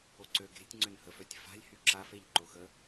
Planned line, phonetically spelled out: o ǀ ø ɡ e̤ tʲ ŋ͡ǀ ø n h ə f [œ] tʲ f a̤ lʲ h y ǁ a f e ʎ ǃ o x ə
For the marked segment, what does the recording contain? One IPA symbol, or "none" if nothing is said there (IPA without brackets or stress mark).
œ